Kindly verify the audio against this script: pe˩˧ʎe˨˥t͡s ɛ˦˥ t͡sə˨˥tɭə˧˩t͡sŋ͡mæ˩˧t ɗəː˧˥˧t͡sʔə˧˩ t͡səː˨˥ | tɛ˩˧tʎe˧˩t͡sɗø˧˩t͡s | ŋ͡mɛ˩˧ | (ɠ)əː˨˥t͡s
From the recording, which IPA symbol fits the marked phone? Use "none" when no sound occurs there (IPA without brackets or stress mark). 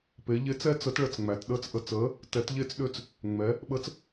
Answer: ɓ